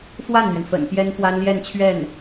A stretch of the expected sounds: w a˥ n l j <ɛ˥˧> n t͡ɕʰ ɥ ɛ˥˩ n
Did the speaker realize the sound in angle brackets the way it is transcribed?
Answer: yes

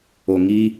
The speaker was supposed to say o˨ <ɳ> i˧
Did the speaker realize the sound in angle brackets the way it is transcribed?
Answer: no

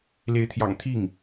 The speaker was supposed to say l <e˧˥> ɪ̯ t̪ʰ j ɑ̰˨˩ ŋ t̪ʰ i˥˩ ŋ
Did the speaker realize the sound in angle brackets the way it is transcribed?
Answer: yes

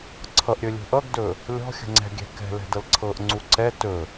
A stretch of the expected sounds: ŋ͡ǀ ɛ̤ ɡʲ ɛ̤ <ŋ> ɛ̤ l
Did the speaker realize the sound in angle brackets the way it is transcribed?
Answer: no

